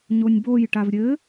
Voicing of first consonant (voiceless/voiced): voiced